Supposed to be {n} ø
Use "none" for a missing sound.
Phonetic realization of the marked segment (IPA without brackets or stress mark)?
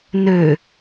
n